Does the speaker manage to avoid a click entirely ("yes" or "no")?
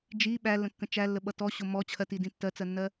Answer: yes